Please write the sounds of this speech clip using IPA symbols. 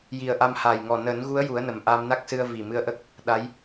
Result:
j i˨˩ ə̯ ʔ a˧ m h a˨˩ j ŋ ɔ˨˩ n əː˨˩˦ n ɣ u˧˥ ə̯ j u˨˩˦ ə̯ n ə˨˩ m ʔ a˧ m n a˦˥ k̚ s ɨ˧ ə̯ v i˨˩ m ɨ˧ ə̯ ʔ ə˦˥ k̚ | ɗ a˧˥ j

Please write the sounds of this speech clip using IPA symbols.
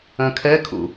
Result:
œ̃ kʰ ɛ kʰ ṵ

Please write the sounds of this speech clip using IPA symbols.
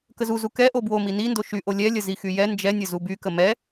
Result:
k ə z u z u k ɛ ʔ o b w o m i n i n d o ʃ y ʔ o lʲ ɛ lʲ ə z i x y j ɛ n d͡ʒ ɛ nʲ ə z u b y k ə m ɛ

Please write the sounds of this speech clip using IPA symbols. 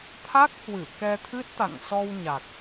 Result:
t̪ʰ a˦˥ k̚ h w ɨ˧˩ k ɛ˧ t̪ʰ ɨ˦˥ t̚ t̪ a̰˧˨ ŋ s ɔ˧ w ɲ a˨˩ k̚

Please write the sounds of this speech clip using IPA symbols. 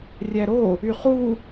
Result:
rʲ æ ɾ o | y χ u

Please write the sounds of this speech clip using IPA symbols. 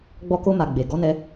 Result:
ɡ͡b ɔ˧ k o˧ m a˨ ɡ͡b e˨ ɡ ɔ˨˦ n ɛ˧

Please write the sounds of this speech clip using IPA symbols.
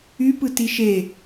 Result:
y p ɯ t i ʃ e

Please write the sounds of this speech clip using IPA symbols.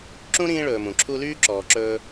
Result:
ǁ ũ˥ ɾ ĩː˦ ɭ ɵː˨ m ũ˩ ǁʰ u˦ l yː˥ ǁ ɔː˨ ǁ ɵː˦

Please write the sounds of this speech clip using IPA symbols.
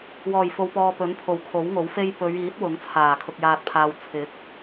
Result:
w ɔː˨˩ j f o˨ w p ɔː˨ p ɵ˨˥ n pʰ o˨˩ w kʰ o˨˥ w ŋ o˨˥ w f e˥ j p ɵ˨˧ ɥ iː˨˥ t̚ w ʊ˨˥ ŋ t͡sʰ aː˨˩ kʰ ʊ˨ k̚ j aː˨ t̚ pʰ aː˨ w t͡sʰ ɪ˨˥ k̚

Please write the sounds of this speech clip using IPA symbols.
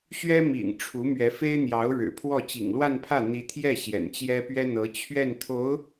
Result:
ɕ ɥ ɛ˥ m ḭ˨˩ ŋ ʈ͡ʂʰ u˧˥ m ɥ ɛ˧˥ f e˥ ɪ̯ n̪ j ɑ˧˥ ʊ̯ ɻ ɻ̩˨˩ pʰ w ɔ˥˩ t͡ɕ ḭ˨˩ ŋ l w a˥˧ n pʰ ä˥˩ n̪ i˧˥ t̪ʰ j ɛ˥˩ ɕ j ɛ̰˨˩ n t͡ɕ j ɛ˥ p ɥ ɛ˥ n̪ ɤ˧˥ t͡ɕʰ ɥ ɛ˥˩ n t̪ʰ o˧˥ ʊ̯

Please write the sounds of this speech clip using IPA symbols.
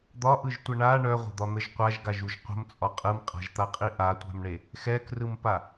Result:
d̪ ɒ ʔ ɯ ʒ tʷ ə ɳ a ɳ œ ʁʷ ə̤ d̪ ɒ n̪ ə ʒ qʷ a ʒ ɡ a ʒ u ʒ qʷ ə̤ m t͡sʼ ɒ qʼ ɯ m qʼ a̤ ʒ t̪ a qʼ i ʔ a tʷ a̤ m ɳ e | x ɛ k r ɯ m p a

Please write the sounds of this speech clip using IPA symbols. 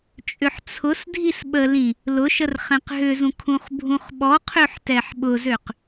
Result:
t͡ʃʼ ʏ ħ t͡sʰ ʊ s dʱ i s ɓ ə l ĩ | l ʊ ʃ ə r χ ɛ̃ q ɦ ʏ z ũ kʰ ũ χ bʱ ũ χ ɓ ɔ qʰ ø ħ t ɛ ħ ɓ ʊ z ø q

